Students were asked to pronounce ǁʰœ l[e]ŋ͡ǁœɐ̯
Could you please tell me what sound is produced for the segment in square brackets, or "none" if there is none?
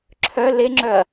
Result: e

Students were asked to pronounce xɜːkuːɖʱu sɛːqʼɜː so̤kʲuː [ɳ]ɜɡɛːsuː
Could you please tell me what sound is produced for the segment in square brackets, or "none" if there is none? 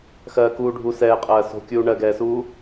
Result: ɳ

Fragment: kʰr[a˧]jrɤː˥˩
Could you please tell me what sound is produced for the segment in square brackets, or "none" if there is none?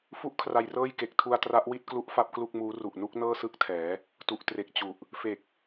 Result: a˧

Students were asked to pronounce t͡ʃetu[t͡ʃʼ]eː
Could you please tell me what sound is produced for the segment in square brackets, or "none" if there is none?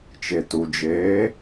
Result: d͡ʒ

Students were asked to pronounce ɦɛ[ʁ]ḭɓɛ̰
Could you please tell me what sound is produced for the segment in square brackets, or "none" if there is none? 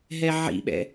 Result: ʕ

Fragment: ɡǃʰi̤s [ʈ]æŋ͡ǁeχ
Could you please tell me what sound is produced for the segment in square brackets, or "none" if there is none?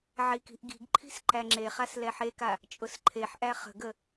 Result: ǃ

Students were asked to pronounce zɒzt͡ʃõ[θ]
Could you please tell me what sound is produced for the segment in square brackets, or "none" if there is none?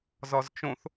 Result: θ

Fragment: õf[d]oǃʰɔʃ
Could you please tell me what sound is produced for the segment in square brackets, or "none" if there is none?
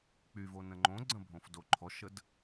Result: d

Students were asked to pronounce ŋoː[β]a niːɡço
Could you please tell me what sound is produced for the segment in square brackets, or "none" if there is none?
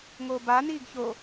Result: b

